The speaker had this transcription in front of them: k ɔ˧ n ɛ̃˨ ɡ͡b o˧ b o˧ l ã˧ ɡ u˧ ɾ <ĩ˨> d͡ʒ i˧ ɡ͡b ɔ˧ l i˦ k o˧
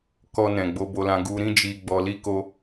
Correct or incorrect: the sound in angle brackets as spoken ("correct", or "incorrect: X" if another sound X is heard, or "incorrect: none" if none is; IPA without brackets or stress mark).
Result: incorrect: ĩ˦